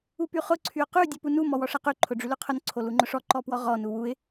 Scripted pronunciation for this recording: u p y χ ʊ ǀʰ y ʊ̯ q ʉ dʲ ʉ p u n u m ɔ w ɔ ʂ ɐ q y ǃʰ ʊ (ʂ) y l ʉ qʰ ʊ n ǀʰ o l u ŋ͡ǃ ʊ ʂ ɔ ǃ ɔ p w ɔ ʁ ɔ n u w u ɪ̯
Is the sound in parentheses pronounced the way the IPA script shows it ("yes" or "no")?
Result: no